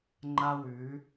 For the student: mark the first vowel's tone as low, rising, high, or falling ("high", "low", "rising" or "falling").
high